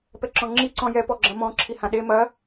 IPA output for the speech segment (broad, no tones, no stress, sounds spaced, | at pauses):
p ɛ ǁ ɔ̃ ŋ͡ǁ i ǀ ɔ̃ j ɛ p ɔ ɡ͡ǁ ɐ̃ m ɔ̃ ǁʰ i h ã ɗ e m ɐ